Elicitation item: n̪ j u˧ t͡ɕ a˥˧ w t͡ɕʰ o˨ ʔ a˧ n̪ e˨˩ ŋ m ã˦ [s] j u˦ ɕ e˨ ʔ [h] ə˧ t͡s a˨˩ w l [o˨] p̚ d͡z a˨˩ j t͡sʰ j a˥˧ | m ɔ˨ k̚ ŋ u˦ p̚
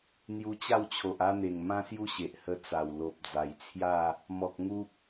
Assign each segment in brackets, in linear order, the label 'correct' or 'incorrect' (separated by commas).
correct, correct, correct